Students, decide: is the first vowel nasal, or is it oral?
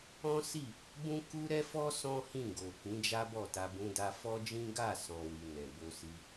nasal